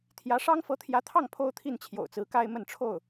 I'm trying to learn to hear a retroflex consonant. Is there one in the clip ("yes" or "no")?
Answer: yes